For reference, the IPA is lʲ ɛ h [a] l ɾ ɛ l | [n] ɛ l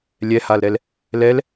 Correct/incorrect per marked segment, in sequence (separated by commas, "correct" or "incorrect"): correct, incorrect